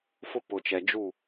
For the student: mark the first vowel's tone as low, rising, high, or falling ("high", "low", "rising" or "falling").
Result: high